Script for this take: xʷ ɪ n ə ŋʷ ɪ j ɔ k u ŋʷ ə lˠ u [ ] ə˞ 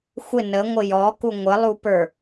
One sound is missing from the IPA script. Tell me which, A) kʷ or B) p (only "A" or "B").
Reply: B